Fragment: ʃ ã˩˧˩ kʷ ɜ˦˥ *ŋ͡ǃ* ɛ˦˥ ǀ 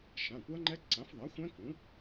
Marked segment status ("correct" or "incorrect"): correct